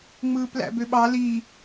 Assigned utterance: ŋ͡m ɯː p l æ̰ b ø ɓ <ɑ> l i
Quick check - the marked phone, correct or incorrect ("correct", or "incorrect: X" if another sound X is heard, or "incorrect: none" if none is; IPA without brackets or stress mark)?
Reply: correct